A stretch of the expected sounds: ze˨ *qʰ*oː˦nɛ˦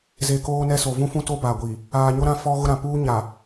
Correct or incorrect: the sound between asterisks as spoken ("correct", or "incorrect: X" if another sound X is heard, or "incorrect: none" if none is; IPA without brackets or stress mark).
incorrect: k